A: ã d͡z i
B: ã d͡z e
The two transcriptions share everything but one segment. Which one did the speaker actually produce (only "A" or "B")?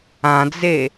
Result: B